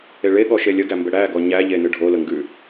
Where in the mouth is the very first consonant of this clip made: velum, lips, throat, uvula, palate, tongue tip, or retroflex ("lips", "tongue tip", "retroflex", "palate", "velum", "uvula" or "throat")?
retroflex